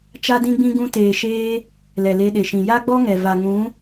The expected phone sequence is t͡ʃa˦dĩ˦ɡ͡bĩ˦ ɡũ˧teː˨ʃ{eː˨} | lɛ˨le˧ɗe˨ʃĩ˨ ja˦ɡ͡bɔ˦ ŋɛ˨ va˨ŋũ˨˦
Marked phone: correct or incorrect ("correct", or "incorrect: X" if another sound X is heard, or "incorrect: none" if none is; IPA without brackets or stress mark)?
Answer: incorrect: eː˧